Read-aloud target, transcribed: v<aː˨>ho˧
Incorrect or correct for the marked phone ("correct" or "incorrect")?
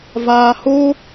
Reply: correct